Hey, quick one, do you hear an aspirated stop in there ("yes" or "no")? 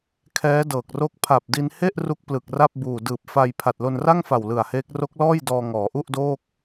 yes